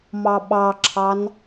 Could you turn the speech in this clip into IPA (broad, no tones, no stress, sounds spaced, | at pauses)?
m ɑ ɓ ɑ ǁʰ ɑ n